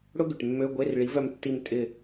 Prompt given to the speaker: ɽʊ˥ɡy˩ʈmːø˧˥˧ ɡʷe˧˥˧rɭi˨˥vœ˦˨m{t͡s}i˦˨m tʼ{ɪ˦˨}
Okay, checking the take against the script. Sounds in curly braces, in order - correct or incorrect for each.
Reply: incorrect: tː, correct

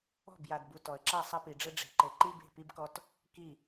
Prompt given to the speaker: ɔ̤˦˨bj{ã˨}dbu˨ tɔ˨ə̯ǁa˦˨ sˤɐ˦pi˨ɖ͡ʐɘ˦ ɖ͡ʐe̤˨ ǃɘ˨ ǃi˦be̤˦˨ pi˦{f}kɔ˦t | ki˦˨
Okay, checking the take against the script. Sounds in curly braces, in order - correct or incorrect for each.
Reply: incorrect: a˨, incorrect: b

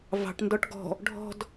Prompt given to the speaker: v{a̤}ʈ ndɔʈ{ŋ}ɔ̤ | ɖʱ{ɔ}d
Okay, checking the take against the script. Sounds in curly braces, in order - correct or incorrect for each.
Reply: incorrect: ɑ̤, incorrect: ɡ, incorrect: ɔ̤

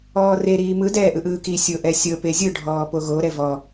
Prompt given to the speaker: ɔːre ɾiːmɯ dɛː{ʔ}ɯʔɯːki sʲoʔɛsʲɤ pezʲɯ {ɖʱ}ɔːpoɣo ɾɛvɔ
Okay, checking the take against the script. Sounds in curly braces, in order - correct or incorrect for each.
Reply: correct, correct

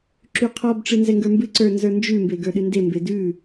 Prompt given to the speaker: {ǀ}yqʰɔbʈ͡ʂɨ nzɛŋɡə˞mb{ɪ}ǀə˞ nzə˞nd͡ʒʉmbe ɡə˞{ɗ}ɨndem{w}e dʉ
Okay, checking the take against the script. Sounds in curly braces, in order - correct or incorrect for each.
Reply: incorrect: ǁ, incorrect: ɨ, correct, incorrect: b

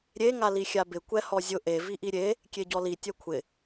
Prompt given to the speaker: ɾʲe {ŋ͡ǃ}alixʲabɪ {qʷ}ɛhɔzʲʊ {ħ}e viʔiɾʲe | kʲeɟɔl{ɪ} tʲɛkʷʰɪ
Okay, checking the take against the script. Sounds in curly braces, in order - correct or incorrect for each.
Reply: incorrect: ŋ, incorrect: kʷ, incorrect: ʔ, incorrect: i

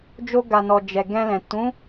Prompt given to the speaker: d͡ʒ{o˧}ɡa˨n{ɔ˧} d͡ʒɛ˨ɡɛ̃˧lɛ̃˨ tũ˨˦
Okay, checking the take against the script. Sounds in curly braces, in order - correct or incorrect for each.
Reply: correct, incorrect: ɔ˨

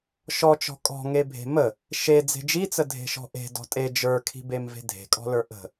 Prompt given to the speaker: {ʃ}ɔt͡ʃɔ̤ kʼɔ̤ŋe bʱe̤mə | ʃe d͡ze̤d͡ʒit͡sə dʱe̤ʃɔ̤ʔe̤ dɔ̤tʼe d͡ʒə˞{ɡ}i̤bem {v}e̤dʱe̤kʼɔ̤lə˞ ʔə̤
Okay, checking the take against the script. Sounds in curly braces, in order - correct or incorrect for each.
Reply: correct, incorrect: kʰ, correct

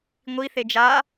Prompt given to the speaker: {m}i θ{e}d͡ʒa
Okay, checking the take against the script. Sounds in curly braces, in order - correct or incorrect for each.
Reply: incorrect: ŋʷ, correct

